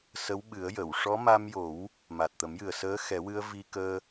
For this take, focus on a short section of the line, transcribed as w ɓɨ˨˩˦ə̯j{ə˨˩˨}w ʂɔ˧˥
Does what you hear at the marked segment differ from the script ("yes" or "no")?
no